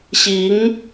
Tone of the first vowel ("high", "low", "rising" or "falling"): rising